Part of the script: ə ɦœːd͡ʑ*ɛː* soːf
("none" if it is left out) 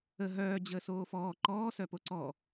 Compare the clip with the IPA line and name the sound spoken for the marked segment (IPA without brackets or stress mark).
əː